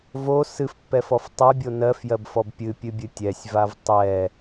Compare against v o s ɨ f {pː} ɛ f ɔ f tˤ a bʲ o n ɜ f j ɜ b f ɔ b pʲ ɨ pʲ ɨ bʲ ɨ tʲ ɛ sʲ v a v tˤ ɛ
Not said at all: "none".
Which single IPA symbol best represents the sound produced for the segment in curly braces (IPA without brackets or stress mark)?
pː